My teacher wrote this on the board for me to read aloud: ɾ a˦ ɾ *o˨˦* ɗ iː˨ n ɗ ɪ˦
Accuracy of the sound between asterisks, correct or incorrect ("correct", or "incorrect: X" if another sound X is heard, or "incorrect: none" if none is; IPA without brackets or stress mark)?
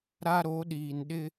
correct